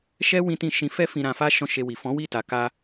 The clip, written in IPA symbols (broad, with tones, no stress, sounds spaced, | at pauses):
ʃ ɛ˦ w ĩ˦ t ĩ˦˨ ʃ ĩ˨˦ f ɛ˦ f ĩ˧ ɾ ã˧ f a˦ ʃ ɔ̃˦˨ ʃ e˧ w i˨ f ɔ̃˨˦ w i˦˨ t a˨ k a˧